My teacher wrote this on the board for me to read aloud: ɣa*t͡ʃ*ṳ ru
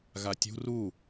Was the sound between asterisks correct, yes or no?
no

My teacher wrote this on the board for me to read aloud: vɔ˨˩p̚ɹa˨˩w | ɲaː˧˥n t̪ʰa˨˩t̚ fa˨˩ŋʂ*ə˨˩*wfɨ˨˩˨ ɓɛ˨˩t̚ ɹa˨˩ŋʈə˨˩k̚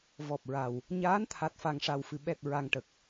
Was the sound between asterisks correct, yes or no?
no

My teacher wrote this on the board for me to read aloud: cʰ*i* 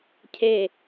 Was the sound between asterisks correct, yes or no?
no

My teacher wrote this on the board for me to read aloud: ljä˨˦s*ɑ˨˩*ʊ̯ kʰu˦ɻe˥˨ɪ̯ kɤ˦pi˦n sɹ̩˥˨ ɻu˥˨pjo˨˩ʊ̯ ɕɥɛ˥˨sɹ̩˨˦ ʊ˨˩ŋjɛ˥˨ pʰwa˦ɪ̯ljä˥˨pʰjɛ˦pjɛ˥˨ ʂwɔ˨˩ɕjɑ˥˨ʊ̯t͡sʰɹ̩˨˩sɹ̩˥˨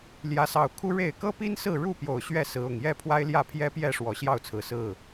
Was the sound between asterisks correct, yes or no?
yes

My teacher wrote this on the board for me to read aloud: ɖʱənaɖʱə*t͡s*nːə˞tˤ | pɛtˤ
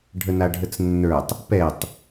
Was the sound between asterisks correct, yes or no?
yes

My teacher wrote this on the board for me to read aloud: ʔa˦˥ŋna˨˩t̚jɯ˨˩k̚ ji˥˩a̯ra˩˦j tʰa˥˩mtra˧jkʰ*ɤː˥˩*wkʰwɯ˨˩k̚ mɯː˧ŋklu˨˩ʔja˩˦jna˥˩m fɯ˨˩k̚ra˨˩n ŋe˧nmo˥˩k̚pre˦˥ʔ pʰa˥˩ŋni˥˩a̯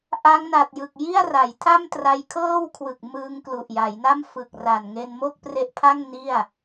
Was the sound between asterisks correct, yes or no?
yes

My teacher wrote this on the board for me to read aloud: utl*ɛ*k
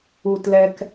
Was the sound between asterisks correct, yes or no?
yes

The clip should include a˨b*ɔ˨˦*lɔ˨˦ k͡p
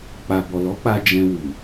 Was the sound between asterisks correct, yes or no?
no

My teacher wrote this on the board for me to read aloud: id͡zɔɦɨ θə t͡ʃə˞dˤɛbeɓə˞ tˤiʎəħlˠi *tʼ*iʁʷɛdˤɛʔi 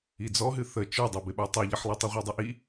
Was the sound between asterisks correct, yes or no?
no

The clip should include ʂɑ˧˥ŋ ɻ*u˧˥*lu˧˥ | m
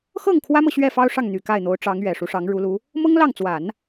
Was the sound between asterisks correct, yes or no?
yes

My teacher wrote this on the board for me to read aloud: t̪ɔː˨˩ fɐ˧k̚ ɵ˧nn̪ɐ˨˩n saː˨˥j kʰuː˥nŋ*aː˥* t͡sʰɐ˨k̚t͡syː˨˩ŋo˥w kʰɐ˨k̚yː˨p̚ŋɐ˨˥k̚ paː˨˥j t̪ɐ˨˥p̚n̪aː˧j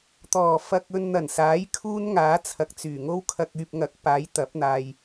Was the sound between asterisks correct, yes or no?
no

